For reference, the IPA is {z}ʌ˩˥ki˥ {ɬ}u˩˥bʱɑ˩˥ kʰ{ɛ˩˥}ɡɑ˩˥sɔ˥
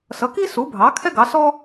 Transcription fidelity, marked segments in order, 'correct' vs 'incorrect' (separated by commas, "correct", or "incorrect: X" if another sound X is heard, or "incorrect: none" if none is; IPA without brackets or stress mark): incorrect: s, incorrect: s, incorrect: ɛ˥